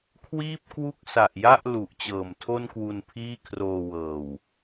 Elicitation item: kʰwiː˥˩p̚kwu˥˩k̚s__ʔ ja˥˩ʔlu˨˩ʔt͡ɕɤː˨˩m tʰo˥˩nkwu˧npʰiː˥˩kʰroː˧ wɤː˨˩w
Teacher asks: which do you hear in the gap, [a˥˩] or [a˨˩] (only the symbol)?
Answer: a˨˩